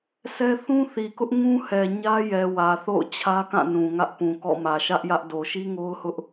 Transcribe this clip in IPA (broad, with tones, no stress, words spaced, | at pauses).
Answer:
sɛ˦ θũ˦θi˨kʊ˦ʔ ŋũ˦hɛ˨ ɲä˦jɛ˨wä˨θo̰˦˨ʊ̯ t͡ɕʰä˦kã˦˨nũ˨ ŋä˦ʔpũ˨kɔ̰˦˨mä˨ ʃä˦ʔjä˦ʔ do˨ʃi˦ŋo˦ʊ̯hʊ˦ʔ